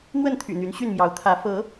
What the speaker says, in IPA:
n̪ w ə˥˨ n t̪ʰ y̰˨˩ n̪ y˨˦ n ɕ y˥˨ n m j ɑ˨˦ ʊ̯ t̪ʰ ä˨˦ f ɤ˨˦

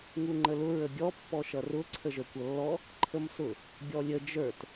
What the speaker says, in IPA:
ŋ u ŋ͡ǃ ə l ʊ ɹ ə ɡʲ ɔ pː ɔ ʃ ʌ r ʊ ǀʰ ə ʒ ə˞ kʷ ʌ lː ɔ | ǃʰ ə m s ʊ | ɡʲ ɔ lʲ ə d͡ʒ ə˞ t

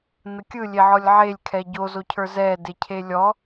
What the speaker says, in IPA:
n ə kʲ ɯ lʲ e ʕ ɔ lʲ ʕ e lʲ kʰ ɛ ɟ o z o cʰ ə˞ z ɛ d e cʰ e lʲ ɔ

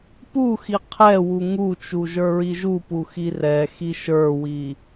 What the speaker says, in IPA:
p u x i qʰ ɛ w u ŋ u t͡ʃ u ʒ ə˞ ɹ i ʒ u p u x i r ɛ x i ʃ ə˞ w i

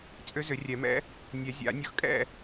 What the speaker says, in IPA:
t͡sʼ ʏ˧˥ z ʏ˨˩˦ rʲ ɛ˨˩˦ m ɛ̰˧˥ | nʲ ɛ˨˩˦ zʲ a̰˨˩˦ nʲ ʊ˧˥ x kʼ ɛ̰˥˨

